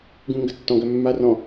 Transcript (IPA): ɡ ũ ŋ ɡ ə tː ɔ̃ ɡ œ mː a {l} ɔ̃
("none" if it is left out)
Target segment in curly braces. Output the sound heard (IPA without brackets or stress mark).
r